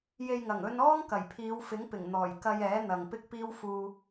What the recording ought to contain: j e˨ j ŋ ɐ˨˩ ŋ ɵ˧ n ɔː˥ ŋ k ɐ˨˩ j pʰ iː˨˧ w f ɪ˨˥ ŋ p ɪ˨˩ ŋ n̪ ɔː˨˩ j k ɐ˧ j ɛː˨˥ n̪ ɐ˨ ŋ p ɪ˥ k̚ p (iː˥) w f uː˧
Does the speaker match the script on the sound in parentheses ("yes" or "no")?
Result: yes